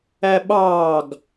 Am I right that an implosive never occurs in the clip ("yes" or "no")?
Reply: no